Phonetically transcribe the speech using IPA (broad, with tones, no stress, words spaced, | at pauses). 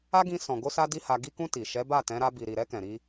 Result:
a˦ɡĩ˧ sɔ̃˨ɡo˧sa˧ di˦ha˧ ɡi˧kũ˧ ti˨ ʃɛ˨˦ba˦˨tɛ̃˨˦ ɾa˧bi˨ɾi˨ ɾɛ˧ kɛ̃˨ ɾi˧